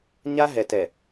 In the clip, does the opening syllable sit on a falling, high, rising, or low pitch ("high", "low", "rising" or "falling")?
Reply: high